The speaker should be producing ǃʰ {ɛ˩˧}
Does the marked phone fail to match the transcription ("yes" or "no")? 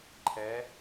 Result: no